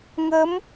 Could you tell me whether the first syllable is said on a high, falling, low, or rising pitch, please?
rising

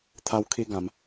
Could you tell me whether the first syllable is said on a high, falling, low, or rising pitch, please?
high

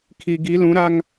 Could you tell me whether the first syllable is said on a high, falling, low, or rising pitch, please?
low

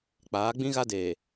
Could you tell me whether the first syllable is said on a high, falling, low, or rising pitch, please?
rising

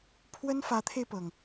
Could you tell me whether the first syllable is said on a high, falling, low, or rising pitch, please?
high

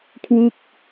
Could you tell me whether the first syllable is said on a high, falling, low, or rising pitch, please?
falling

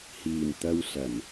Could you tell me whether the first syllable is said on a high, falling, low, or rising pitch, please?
low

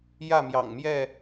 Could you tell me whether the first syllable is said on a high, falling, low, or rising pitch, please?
falling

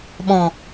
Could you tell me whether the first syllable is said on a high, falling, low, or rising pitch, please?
low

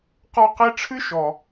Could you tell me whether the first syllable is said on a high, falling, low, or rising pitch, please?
high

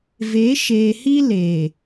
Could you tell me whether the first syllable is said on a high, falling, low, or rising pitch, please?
rising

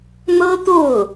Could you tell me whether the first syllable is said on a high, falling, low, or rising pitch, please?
high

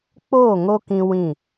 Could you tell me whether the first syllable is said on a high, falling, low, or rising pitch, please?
falling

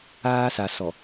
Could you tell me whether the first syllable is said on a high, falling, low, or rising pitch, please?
high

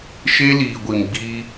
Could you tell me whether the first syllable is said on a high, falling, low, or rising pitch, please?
high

